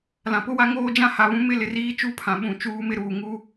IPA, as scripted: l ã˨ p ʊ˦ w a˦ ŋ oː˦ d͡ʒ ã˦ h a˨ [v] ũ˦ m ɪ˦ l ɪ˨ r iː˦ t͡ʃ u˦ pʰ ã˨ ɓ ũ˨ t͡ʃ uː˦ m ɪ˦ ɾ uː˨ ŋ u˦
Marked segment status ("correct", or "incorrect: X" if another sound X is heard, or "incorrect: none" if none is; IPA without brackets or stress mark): incorrect: β